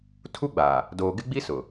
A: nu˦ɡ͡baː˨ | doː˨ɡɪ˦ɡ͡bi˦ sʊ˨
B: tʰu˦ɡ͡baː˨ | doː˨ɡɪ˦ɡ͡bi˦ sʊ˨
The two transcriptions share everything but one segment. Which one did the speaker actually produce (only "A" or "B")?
B